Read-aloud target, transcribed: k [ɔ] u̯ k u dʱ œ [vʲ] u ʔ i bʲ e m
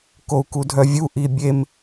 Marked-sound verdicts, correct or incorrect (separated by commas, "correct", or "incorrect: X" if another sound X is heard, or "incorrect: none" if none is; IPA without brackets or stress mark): incorrect: o, correct